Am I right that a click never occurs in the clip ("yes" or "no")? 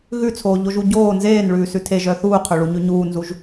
yes